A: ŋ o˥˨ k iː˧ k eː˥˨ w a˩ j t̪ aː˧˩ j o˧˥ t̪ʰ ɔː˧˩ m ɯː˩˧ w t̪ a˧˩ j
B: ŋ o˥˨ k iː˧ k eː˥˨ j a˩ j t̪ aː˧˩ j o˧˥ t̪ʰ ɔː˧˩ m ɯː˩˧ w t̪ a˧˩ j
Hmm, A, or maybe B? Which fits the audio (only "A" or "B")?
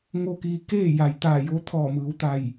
B